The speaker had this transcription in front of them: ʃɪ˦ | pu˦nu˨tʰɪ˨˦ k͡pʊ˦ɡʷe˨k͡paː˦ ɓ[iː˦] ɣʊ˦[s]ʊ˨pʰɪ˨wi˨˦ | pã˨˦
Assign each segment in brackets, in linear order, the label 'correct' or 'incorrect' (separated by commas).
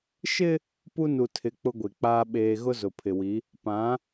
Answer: incorrect, incorrect